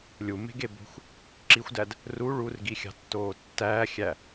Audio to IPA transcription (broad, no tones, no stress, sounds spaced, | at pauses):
lʲ u m e̤ ɡ e b o̤ xʷ | ǁ i xʷ d æ d | r u ɭ u r ɡ i xʲ ɑ̤ tː oː tː æː xʲ æ